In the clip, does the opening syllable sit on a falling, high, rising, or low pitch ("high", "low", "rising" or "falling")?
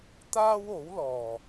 high